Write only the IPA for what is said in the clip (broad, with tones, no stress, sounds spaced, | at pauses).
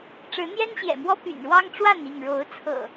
ʈ͡ʂ ɻ̩˨˦ n̪ j ɛ˦ n ɕ j ɛ̰˨˩ m w ɔ˦ p y̰˨˩ n ɻ w ɑ˦ ŋ ʈ͡ʂ w a˥˨ n i˥˨ ŋ ɻ o˨˦ ʊ̯ t͡sʰ ɤ̰˨˩